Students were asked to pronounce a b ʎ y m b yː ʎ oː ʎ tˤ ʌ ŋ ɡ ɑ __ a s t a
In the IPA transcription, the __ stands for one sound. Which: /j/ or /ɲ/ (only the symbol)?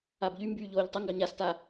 ɲ